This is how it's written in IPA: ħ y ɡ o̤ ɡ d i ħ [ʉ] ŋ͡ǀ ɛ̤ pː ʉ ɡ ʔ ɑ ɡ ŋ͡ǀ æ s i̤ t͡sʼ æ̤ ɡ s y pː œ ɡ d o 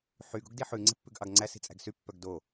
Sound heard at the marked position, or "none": ʉ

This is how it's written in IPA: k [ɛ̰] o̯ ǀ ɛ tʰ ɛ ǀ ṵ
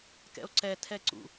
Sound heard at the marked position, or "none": ɛ̰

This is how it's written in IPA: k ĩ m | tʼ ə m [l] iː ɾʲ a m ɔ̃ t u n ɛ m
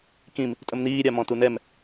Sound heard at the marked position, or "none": n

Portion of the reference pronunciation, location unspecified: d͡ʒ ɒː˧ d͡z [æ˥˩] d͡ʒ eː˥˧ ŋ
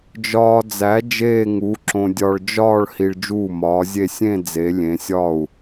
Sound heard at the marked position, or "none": æ˨˥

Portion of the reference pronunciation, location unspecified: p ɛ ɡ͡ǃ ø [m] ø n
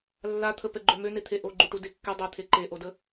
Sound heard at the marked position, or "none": m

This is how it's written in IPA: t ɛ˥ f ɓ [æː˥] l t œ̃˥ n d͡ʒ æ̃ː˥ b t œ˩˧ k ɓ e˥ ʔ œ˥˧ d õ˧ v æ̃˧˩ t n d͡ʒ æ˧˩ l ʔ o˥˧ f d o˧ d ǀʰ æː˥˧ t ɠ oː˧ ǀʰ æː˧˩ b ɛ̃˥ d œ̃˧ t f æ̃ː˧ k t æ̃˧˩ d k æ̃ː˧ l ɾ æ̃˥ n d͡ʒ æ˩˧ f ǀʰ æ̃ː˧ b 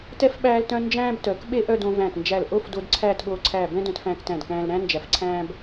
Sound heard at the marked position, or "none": æː˥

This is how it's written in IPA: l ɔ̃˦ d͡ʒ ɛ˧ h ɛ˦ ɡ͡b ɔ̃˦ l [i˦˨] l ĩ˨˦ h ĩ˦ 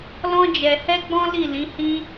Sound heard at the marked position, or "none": i˦˨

